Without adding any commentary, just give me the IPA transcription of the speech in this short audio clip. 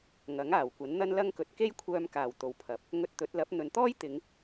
ŋ ɐ˨˥ ŋ aː˨˩ w kʷ ɐ˨˥ n n̪ ɐ˥ n l ɐ˥ ŋ k ɵ˧ t̚ k e˥ j kʷʰ œː˧ m k aː˨˩ w t̪ o˨ w pʰ ɐ˨˥ p̚ | ŋ ɵ˧ t̚ t̪ ɵ˨˥ t̚ l ɐ˨˥ p̚ n̪ ɵ˨ n t̪ ɔː˥ j t̪ ɪ˨˧ ŋ

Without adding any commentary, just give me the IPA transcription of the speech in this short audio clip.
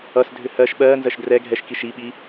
ʌ s dʱ ʏ h ɜ ʃ ɓ ɜ n z ɜ ʃ d r ɛ ɡʱ ɛ ʃ k i ʃ i ɓ i

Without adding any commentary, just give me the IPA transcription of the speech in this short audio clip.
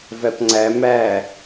v æ p ŋ͡ǀ æ m æ

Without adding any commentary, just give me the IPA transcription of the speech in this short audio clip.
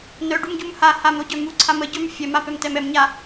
n œ ɖ u m ɟ u m h a h a m ɾ o ɟ œ m u ǀʰ a m ə ɟ œ m fʲ ɛ m a p ɛ m t ɛ m ɛ m ɲ a

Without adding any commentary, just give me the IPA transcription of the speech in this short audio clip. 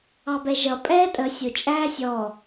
ɑ b ɛ ʒ ʌ pʼ ɛː tʼ ə sʲ ʊ t͡ʃʼ æː sʲ ɔ

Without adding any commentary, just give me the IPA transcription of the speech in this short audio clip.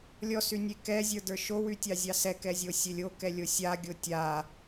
lʲ ɔ s y nʲ e k ɛ zʲ ə˞ d ə˞ ʃ o w y tʲ ɑ zʲ ɑ s ɛ k ɛ zʲ o sʲ e lʲ o k ɛ lʲ o sʲ a ɡʲ o tʲ a

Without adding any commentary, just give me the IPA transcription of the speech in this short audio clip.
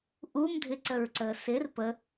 ʔ u m dʱ ɪ ǀ ə ɹ ǀ əː s ɪ r p ə

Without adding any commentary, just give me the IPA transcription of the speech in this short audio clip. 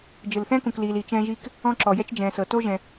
d͡ʒ ɯ˧ l θ ɛ̃ː˥ k ũ˧ k l iː˧ l i˧ t͡ʃ ɛ̃ː˥ ʒ iː˥ k | ɔ̃˥ ǁ ɔ˧ j ɛ˥ t͡ʃ d͡ʒ ɛ̃ː˧ s ɤ˧ t o˥ ʒ ɛ̃˧

